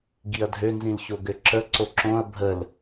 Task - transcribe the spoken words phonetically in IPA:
ɡiɐ̯dʱønzĩlço ɡøǁə ǀoǁõɐ̯ bʱəl

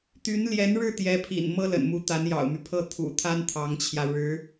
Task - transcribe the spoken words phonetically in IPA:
t̪y˧˥nljɛ˧˥nɻɻ̩˥˩ t̪jɛ˧˥pʰḭ˨˩n mɤ˥lə̰˨˩nmu˧˥t̪a˧˥n jɑ̰˨˩ʊ̯my˦pʰɤ˥˩ t̪ʰṵ˨˩t̪ʰa˥n t̪ʰɑ˧˥ŋt͡ɕʰjä˧ ɻɻ̩˧˥

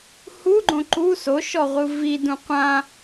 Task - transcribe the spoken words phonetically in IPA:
huɡ͡ǃõ ǃu soʃɔʁʷɯ vidũ qʷã

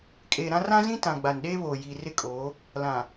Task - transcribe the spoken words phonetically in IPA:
kʼeː˨ ɾã˦ rã˦zĩ˦ tã˨ ɡ͡ba˨nɗeː˦βoː˨ ji˨rɪ˦kʼoː˨˦ | lã˨

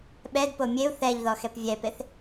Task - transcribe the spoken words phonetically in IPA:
ɓɛdpo mʲeu̯ θɛʎ ðɔxɛpvʲɛpeθ

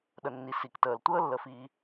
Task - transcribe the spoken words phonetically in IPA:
ɗə˩nːi˩ si˩ktəː˩l tʷəː˦lːə˩fiː˩

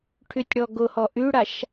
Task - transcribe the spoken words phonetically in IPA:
ʈʰytʲɽɔɡʊhɔ ʔyɽaʃ

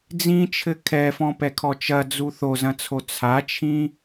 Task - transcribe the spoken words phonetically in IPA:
d͡zĩt͡ʃʰɘ kʰɛfɔ̃pɛkʰɔ t͡ʃɐd͡zu θozɐ̃t͡sʰo t͡sʰat͡ʃʰĩ

